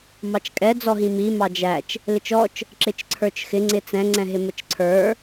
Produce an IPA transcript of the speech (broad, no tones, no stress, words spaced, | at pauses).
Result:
mɑt͡ʃkʼɛ d͡zɔɦĩmi mɑd͡ʒæt͡ʃ | lɪt͡ʃɔt͡ʃ | ǁɪt͡ʃǀʰə˞t͡ʃxɪ ŋ͡ǀɪt͡sɛ̃ ŋ͡ǀɛ̃ɦɪmət͡ʃǀʰə˞